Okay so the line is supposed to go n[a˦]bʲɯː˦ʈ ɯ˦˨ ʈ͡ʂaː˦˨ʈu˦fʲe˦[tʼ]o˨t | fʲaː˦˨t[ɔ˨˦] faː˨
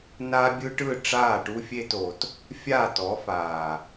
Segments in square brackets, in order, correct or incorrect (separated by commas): correct, incorrect, correct